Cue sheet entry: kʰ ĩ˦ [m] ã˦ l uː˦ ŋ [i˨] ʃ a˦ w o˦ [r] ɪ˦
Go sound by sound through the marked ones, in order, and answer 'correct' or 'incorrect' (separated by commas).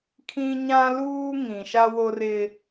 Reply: incorrect, incorrect, correct